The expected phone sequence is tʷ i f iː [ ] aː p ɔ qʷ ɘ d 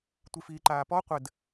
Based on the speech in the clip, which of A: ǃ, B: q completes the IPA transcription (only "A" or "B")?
A